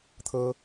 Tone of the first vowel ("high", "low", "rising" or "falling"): high